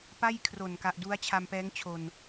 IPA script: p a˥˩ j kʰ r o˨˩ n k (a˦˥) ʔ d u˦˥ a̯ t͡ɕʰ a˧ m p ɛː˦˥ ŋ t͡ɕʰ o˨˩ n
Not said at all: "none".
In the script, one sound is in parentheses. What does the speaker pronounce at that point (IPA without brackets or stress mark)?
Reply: a˨˩